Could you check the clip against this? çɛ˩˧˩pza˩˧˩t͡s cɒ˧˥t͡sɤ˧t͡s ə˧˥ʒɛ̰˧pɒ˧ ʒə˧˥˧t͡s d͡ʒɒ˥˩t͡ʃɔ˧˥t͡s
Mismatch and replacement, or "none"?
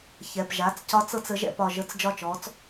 z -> ʒ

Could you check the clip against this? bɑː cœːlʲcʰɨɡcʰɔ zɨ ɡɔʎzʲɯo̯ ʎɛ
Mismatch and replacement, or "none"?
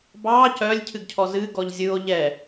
none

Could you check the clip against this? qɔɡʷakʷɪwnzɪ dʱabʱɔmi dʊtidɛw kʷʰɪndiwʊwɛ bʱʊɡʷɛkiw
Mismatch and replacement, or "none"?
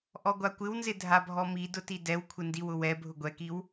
q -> ʔ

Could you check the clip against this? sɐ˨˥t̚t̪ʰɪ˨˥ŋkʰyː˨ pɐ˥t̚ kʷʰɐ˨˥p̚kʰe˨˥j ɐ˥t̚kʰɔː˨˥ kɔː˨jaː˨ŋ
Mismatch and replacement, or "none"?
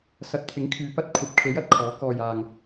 none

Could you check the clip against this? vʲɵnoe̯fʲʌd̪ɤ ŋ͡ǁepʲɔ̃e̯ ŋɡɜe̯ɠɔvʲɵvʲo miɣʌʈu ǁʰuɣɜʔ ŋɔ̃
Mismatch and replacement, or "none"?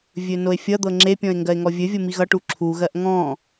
ɠ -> ŋ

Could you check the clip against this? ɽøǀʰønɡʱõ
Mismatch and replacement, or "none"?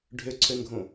ɽ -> ɖʱ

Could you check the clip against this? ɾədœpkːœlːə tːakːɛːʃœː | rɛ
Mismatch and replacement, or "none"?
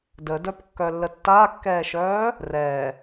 ɾ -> d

